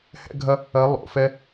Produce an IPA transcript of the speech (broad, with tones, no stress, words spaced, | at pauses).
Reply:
hɛ̰˥ɡʱɐ˥ | ɐ˧˥ lˠo̰˩˧fɛ˥